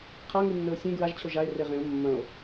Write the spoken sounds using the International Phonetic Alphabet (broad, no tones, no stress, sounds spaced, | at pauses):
qʰ a ŋ ɨ nː ɵ o̯ sʲ ẽ ɡ ɹ a ʒ t͡ɕʰ o ʒ a e̯ r e ʁ ẽ o̯ mː ɐ̃ o̯